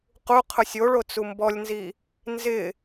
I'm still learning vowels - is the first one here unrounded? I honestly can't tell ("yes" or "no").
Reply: no